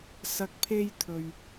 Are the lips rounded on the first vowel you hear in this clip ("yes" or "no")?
no